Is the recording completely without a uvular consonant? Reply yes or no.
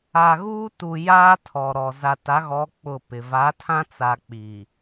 yes